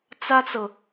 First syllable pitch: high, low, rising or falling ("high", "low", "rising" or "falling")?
high